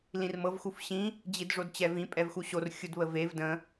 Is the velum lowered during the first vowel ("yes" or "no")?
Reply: yes